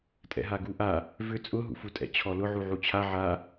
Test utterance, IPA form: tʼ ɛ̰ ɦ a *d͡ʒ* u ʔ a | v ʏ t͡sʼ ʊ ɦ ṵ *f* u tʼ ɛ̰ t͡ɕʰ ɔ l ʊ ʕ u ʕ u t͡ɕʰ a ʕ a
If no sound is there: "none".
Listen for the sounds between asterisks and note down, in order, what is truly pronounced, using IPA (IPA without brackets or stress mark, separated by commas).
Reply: ɡ, f